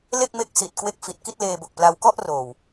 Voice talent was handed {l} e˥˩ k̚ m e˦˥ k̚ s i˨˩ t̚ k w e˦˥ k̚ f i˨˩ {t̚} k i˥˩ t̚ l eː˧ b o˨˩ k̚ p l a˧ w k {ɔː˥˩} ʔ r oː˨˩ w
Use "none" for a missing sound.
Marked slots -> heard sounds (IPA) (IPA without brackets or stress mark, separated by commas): l, t̚, ɔ˥˩